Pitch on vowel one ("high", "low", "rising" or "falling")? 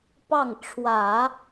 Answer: falling